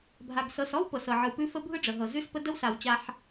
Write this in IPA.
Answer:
bʱ a˨ ɡ s ɤ˨ s ɔ˦ w p ɤ˨ s ɤ˨ ʕ ɯ˨ p ʉ˦ f ə˦ bʱ ɯ˦ ɖ͡ʐ ə˨ ɦ ɤ˨ z ʉ˦ s p ə˦ d ə˦ w s a˨ w t͡ɕ a˦ ħ

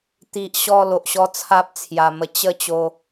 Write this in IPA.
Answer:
t̪ i˨ ʔ ɕ ɔ˧ l o˨ ʔ ɕ ɔ˦ t͡sʰ a˦ p̚ t͡sʰ j a˨˩ m ə˧ t͡ɕ ə˥˧ t͡ɕ o˧

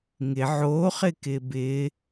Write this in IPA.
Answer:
ŋ ɪ ʕ oː χ ɪ k ɪː b ɪ

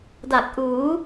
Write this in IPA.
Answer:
d a˨˩ k̚ ʔ uː˩˦

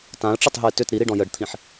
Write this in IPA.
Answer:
t ã ə̯ ʈ͡ʂ ə tˤ ɦ ə ɪ̯ t ʏ t ɾ i ɾ i ɖ ɔ̃ j ə ɖ t̪ʰ ĩ ħ

